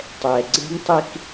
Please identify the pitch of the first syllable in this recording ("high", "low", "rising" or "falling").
low